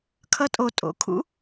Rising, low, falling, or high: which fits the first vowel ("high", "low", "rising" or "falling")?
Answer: rising